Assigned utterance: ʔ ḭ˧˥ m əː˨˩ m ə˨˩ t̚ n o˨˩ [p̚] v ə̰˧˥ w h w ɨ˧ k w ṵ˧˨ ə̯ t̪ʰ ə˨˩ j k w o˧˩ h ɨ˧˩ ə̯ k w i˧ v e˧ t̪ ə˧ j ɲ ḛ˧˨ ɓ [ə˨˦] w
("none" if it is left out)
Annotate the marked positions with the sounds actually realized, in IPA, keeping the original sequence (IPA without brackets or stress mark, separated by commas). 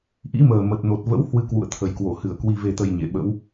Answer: t̚, ə̰˧˥